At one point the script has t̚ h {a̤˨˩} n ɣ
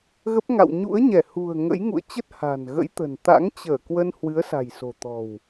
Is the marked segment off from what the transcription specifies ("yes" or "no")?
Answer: no